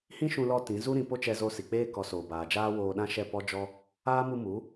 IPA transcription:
h ĩ˦ ʃ ũ˧ l ɔ˧ t ĩ˨˦ z u˦ ɾ ĩ˧ p o˦ t͡ʃ ɛ˧ z o˧ s i˨ k͡p eː˦ k ɔ˨˦ s oː˨ b aː˨ d͡ʒ aː˦ w oː˧ ɗ ã˦ ʃ ɛ˦˨ p ɔ˦ d͡ʒ ɔ˦ | aː˦ m u˧ m u˨˦

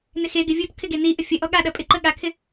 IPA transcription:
n ɪ x e ɡ ɪ vʲ u t kʰ ɪ ɡ e n i ʔ ə fʲ ə ʔ ɔ ɠ a ɗ ɐ pʼ ɪ ǃ ə ɠ a kʰ ɪ

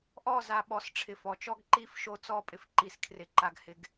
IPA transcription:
ʔ ɔ˦˨ z a˨ ɓ ɔ˨ s ʈ͡ʂʰ ɪ˨ f ɔ˨ t͡ʃ ɔ˦ ɡ ǃ iː˦ f ʃ o˦˨ t͡s ɔː˦ pʼ ɪ˨ f ǃ i˨ s kʰ r ɪ˨ ǃ a˨ ɡ h ɪ˨ ɡ

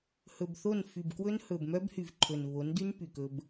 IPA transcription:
h ɵ˨ b θ o˦˨ n f y˨ b k w ɵ˦ n h ɵ˨ b m œ˦ b h y˨ v ǃʰ ɵ˨ n β o˨˦ n d y˦ n p y˨ k ɵ˦ b

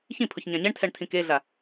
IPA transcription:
ç ĩ pʰ ʊ ç ɲ ã ɲ ɛ ɳ tʰ ɛ ɳ tʰ ĩ k e ɮ a

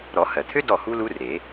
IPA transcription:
ɾ ɔ˨˩˦ h ɜ˩ t̪ʰ ø˦˥ d ɔ˥˩ h u˦˥ l u˦˥ r e˨˩˦

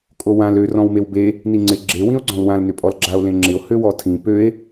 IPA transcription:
kʼ o w ã l ø r ɔ̃ w m e w b e | n i ŋ͡ǀ ɪ ɡ͡ǁ e w ĩ o̯ ɡ͡ǀ ɔ̃ l w ã l n ʏ pʼ ɔ l ɡ͡ǁ a o̯ l ẽ ŋ͡ǁ ɪ o̯ h ø w ɔ tʰ ĩ p ø e̯

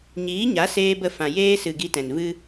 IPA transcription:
ɲ iː˨˦ ɲ a˨˦ s eː˧ b ə˧ f ã˨ j eː˧ s ɨ˨ ɡ i˧ t ɛ̃˨ n v ɨ˦

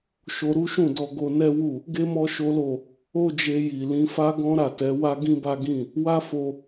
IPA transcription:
ʃ o˧ ɾ u˦ ʃ ũ˦˨ d ɔ˧ ɡ o˧ n ɛ˦ w u˦˨ | ɡ e˦ m ɔ˦ ʃ o˦ l o˦˨ | o˦ d͡ʒ e˧ j i˨ l ĩ˨˦ f a˦ ɡ ɔ̃˦ ɾ a˦˨ t ɛ˨˦ w a˦ ɡ ĩ˦ b a˦ ɡ ĩ˦˨ | w a˦ f o˧

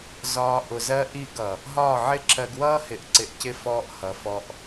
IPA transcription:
z ɒː˧ ʔ ʊ˨ z ɜ˦ ʔ i˦˨ ɡ ʌ˨ | ɦ ɒː˦˨ ʕ ɪ˦ ǁ ɜ˧ ɡ w ʌː˦ h ɪ˨ ʔ ǀ ɪ˨ ʔ c ɪ˧ f ɔː˧ ʔ h ʌ˨ f ɔ˧ ʔ

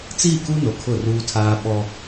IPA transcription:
t͡s iː˦˨ k u˦ n o˨ kʰ ʊ˦˨ r uː˦ tʰ aː˦ ɓ ɔ˦

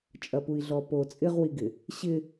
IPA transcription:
t͡ʃʼ ɐ p u i̯ ɮ ɔ p o t͡sʼ ɪ ʁ w i ɡ ɪ | ɕ ɪ

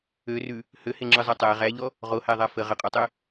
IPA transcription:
ø r ʉ | h ø h e ŋ͡ǁ ɯ zˤ a tˤ æ ʁ æ ʎ ɔ | ʁ o h æ ðˤ a f ə ʁ ə qʼ ɔ tˤ ø

